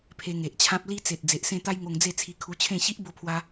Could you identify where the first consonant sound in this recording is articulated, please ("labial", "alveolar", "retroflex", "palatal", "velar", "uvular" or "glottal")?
labial